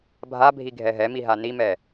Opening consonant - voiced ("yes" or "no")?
yes